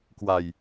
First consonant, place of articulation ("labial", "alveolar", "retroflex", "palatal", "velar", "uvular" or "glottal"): velar